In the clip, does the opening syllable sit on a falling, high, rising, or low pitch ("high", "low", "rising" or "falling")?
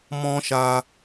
high